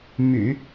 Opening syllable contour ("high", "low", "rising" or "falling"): low